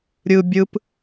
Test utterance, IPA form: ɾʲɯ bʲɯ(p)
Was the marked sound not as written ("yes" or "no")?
no